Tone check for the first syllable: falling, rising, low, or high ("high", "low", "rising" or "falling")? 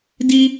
high